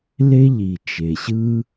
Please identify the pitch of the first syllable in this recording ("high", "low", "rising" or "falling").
high